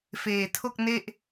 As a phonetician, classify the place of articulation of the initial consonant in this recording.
labial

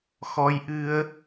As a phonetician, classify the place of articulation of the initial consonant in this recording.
velar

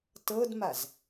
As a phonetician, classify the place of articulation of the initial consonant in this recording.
alveolar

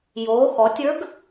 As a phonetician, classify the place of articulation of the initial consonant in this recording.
palatal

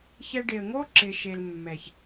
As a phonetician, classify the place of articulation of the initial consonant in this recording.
palatal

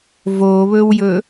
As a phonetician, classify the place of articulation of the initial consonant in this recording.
labial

